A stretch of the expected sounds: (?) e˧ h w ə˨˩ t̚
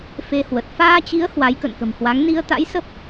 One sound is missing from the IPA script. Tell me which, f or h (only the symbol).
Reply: f